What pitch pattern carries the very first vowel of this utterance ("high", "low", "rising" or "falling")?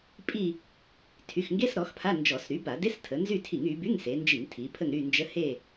falling